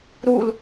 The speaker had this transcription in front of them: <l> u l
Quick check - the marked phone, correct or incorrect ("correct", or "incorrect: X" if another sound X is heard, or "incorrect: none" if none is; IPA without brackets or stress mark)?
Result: incorrect: ɾ